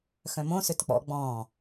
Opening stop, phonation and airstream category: plain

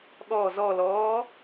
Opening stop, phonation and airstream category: implosive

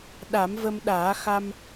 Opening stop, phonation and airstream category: implosive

